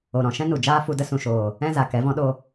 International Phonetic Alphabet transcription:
o˨ ɾ ɔ̃˨ ʃ ɛ̃˦ n u˨ d͡ʒ aː˦ f u˧ d ə˦ s ũ˨ ʃ oː˨ | ɛ̃˦ z a˨ k ɛ˨˦ v ɔ̃˦ ɗ o˦

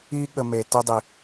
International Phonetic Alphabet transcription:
i˦ ɠ ə˨ m e˨ t ə˦ dˤ i˨

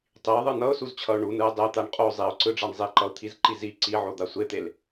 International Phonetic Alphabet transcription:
tˤ i ʊ̯ ðˤ ɯ n ʌ ʊ̯ s u z t͡ɕʰ ʌ ʊ̯ ɳ u n ɯ ɪ̯ dˤ e t̪ a ɳ qʼ o zˤ i ʊ̯ ǀ ɯ ɖ͡ʐ a ɳ zˤ i ǃ ʌ ʊ̯ t̪ʰ i z ǃ i z i ǀ i ʕ o d̪ a sʷ e t̪ e l

